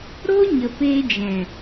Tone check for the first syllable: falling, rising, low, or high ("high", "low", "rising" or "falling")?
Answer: high